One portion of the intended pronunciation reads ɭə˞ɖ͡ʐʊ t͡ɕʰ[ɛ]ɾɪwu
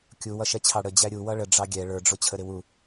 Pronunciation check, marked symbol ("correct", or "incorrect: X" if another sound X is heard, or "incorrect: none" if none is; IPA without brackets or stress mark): incorrect: ə